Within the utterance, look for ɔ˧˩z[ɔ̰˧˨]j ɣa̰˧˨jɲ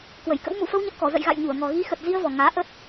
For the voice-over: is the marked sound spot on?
no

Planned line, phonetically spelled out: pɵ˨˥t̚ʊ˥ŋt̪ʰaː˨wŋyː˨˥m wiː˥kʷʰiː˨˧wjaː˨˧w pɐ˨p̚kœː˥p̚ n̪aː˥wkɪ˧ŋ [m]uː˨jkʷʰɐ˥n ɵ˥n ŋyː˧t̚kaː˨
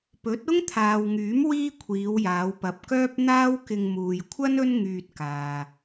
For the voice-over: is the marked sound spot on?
yes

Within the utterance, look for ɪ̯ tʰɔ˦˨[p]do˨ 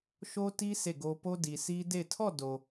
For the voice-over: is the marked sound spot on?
no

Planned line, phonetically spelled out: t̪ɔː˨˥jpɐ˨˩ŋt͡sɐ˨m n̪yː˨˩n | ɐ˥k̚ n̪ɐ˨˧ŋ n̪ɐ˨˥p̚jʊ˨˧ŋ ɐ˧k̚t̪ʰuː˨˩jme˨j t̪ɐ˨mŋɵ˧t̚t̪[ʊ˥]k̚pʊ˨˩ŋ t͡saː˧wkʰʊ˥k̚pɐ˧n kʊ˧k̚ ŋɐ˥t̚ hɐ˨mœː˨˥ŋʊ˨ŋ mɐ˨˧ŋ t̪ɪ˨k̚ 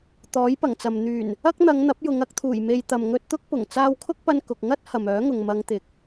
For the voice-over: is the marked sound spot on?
yes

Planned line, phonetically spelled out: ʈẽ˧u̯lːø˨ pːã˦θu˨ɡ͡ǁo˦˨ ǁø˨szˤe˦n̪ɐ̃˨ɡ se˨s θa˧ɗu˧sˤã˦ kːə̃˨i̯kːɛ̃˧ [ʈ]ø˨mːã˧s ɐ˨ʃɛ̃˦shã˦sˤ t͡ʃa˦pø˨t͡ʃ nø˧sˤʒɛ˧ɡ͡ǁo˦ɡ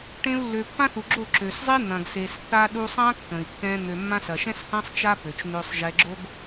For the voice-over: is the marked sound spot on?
no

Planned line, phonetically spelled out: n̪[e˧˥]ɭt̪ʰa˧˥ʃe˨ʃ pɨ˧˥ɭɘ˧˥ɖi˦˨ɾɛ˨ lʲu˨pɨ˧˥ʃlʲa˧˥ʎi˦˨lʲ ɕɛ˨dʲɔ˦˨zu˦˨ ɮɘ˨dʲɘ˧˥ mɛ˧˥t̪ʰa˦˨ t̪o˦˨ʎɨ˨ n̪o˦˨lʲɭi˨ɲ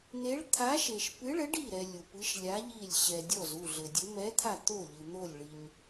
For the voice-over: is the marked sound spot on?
yes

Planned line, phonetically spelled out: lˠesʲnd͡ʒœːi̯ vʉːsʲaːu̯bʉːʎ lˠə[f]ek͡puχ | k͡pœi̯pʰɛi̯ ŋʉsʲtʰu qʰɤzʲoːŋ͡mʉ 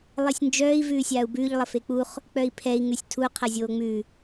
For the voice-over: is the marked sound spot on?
yes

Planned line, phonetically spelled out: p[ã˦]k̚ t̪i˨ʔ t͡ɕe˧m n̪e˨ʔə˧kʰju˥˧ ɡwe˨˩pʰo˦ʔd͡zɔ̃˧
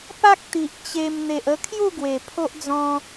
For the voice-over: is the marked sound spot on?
no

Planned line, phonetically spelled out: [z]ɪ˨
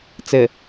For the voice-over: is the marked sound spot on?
no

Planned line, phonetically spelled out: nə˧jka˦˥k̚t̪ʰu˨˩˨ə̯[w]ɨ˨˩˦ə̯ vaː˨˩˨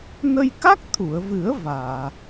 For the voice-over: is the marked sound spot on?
no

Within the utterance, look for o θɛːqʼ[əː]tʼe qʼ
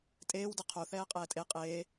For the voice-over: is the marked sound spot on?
no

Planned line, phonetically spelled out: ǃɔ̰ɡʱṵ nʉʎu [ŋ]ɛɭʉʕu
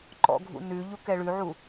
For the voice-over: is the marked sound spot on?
no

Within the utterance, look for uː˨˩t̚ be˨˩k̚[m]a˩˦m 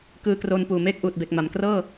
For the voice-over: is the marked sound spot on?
yes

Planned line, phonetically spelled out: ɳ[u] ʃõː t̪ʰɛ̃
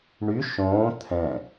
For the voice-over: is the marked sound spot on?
no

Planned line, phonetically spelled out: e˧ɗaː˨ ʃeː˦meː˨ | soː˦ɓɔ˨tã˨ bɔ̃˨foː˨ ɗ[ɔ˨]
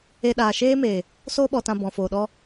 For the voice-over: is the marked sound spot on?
no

